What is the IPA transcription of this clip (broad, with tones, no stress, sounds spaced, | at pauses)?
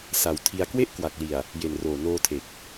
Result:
s a˨˩ w tʰ i˧ a̯ k w e˥˩ ʔ k w a˨˩ k̚ l i˨˩ a̯ | j e˨˩ n r oː˨˩ n oː˧ tʰ e˨˩ k̚